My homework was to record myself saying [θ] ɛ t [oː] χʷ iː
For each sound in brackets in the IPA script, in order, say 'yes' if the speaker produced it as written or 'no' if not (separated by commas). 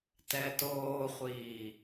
no, yes